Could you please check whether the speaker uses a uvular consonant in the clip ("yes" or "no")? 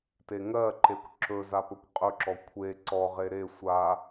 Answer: yes